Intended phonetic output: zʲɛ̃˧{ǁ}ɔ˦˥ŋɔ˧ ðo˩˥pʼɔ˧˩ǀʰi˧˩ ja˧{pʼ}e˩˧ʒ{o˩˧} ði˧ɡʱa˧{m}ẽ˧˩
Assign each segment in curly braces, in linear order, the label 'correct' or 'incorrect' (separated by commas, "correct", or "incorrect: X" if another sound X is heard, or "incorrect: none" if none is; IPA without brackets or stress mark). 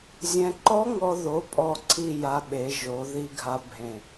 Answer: incorrect: ǃ, incorrect: ɓ, correct, incorrect: bʱ